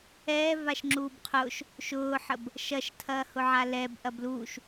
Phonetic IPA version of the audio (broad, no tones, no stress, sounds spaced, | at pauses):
ɛː v a ʃ ŋ͡ǁ uː b qʰ ʊː ʃ | ʃ ʊː ħ ə b | ʃ ɐ ʃ tʰ ɐː h ʊ ʕ a l ɛ b ʔ ɐ b l uː ʃ